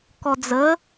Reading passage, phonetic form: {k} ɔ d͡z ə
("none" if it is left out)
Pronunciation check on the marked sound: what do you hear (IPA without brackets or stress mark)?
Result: k